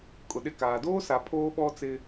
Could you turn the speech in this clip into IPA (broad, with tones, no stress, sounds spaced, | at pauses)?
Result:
kʼ ʊ˨ ɗ ɪ˦˨ k aː˨ d oː˦ s a˨ pʰ oː˦ ɓ ɔ˦ t͡s ɪ˦